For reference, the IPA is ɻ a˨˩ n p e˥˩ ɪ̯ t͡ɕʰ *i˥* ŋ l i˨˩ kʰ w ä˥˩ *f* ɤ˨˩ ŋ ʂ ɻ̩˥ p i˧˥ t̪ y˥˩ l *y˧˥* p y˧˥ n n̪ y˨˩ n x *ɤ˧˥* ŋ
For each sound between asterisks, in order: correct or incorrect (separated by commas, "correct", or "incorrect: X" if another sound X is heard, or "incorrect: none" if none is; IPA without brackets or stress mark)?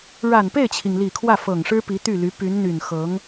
incorrect: i˩, correct, correct, correct